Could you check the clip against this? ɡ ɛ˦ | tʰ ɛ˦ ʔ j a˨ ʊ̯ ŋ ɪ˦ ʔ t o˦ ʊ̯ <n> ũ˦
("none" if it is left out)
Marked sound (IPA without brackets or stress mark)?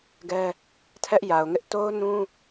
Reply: n